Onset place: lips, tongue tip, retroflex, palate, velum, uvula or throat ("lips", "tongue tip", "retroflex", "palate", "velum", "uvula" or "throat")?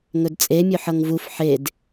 velum